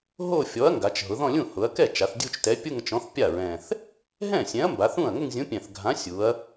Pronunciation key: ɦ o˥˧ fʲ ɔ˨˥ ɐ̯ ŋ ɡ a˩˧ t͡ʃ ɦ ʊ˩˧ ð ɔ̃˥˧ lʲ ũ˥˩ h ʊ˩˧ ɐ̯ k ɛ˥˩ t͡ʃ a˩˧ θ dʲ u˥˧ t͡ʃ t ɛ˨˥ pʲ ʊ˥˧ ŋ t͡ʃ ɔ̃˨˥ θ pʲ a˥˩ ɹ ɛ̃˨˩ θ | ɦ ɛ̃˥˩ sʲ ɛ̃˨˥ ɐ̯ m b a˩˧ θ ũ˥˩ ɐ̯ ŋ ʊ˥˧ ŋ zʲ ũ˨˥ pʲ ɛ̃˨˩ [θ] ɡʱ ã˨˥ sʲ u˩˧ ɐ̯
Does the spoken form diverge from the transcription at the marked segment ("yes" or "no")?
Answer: no